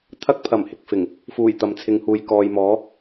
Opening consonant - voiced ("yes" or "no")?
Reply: no